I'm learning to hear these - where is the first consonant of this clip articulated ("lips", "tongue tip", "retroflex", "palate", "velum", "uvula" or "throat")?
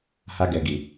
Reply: throat